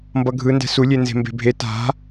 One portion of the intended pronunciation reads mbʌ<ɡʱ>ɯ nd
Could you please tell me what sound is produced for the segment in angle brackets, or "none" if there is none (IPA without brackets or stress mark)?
ɡʱ